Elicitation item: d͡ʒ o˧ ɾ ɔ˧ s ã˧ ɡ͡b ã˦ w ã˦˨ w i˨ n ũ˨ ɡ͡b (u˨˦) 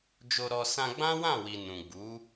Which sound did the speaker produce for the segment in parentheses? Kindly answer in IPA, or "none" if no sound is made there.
u˨˦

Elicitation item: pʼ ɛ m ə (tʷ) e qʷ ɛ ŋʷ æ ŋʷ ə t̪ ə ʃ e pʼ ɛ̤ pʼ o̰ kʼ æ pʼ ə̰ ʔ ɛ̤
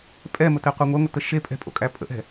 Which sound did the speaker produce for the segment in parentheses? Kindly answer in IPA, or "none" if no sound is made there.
t̪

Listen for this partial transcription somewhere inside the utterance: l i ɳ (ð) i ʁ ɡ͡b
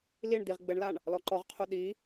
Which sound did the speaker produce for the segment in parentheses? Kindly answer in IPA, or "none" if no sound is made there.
d̪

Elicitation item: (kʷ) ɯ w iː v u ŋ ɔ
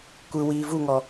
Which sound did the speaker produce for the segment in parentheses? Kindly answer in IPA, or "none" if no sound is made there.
kʷ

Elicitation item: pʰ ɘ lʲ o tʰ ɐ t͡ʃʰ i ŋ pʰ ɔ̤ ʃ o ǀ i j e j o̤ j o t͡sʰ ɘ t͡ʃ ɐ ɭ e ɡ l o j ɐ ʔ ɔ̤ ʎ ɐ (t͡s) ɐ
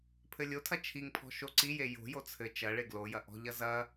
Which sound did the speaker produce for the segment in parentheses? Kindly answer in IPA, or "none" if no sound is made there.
z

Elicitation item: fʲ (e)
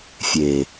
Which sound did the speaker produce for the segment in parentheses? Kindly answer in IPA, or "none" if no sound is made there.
e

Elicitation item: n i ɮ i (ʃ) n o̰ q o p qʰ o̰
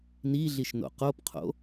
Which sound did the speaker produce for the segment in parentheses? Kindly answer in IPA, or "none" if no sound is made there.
ʃ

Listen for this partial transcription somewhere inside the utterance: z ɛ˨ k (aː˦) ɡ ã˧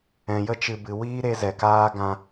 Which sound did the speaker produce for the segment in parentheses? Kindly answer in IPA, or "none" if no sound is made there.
aː˦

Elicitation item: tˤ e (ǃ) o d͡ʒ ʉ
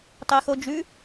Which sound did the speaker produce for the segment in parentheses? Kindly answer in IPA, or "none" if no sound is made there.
x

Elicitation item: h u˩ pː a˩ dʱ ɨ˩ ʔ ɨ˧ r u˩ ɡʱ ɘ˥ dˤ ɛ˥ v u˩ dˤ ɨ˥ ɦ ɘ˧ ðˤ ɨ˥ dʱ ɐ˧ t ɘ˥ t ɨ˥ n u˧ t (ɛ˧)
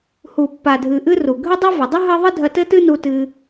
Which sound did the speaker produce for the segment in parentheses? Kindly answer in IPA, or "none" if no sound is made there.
ɨ˧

